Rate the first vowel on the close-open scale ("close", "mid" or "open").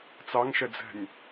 open